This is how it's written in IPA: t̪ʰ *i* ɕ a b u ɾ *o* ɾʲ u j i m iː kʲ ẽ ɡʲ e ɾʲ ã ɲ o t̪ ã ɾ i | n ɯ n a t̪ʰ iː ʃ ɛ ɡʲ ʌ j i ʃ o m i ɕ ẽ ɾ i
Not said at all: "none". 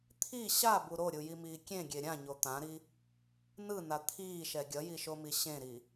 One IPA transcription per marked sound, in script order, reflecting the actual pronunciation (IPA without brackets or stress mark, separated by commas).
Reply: i, o